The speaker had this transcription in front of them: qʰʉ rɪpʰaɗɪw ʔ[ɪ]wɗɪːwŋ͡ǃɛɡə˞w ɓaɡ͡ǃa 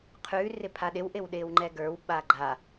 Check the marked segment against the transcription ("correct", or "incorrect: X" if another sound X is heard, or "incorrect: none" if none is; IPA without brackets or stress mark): correct